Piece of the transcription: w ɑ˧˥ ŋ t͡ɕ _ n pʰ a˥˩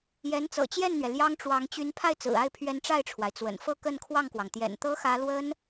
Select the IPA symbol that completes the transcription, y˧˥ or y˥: y˧˥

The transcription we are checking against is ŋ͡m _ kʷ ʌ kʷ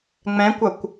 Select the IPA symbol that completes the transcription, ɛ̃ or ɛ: ɛ̃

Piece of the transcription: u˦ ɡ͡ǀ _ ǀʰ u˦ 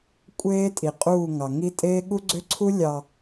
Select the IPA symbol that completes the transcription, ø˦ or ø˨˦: ø˦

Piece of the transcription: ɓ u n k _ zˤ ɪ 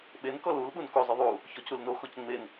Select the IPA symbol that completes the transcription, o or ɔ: o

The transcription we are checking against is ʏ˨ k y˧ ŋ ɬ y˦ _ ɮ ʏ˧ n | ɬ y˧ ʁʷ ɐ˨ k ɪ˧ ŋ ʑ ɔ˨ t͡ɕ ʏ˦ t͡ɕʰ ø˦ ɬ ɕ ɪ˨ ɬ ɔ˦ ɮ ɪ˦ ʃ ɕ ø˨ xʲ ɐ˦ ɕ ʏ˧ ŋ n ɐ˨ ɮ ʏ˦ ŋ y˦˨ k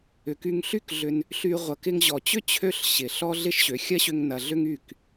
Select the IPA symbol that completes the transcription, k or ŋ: k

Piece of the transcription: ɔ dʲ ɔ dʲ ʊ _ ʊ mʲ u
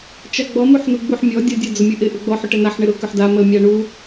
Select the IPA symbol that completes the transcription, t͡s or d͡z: d͡z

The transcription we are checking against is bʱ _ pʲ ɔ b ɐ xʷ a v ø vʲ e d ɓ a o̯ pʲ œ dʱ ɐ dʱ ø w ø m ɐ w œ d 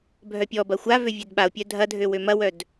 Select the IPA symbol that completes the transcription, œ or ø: œ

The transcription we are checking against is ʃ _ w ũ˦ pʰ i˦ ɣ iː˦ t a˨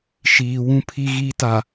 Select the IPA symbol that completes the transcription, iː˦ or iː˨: iː˨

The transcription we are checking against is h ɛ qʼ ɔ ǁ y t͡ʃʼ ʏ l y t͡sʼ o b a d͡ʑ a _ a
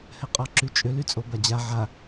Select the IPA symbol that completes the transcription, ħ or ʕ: ʕ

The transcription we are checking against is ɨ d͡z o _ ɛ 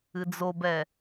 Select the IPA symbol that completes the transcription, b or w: b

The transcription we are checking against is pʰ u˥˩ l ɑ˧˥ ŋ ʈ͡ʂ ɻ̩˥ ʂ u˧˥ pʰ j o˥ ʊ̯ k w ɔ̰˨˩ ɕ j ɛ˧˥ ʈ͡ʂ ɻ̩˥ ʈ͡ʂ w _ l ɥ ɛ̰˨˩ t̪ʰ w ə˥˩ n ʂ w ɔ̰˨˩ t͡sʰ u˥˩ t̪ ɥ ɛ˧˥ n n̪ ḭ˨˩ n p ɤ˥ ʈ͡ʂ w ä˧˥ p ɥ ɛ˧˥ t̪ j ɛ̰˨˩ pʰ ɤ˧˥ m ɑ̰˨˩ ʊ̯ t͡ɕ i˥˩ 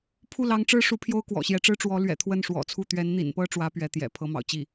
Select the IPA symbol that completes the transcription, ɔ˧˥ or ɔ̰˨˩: ɔ˧˥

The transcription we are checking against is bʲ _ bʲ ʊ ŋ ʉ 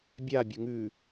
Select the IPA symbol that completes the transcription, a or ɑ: a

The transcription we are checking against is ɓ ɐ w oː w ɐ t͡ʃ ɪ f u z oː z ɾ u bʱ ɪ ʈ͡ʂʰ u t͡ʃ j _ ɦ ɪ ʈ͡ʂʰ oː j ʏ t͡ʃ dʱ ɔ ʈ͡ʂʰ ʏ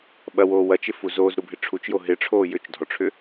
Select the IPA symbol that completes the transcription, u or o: o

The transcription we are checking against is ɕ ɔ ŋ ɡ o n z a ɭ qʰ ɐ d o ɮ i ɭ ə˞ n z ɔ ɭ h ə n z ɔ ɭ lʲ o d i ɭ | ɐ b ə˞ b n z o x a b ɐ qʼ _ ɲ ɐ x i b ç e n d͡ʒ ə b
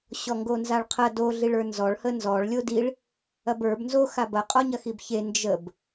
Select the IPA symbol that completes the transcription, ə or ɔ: ɔ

